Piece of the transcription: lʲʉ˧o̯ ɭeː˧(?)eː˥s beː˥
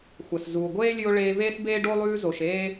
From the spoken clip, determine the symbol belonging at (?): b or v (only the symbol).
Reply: v